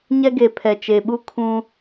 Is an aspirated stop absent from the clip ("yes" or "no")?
no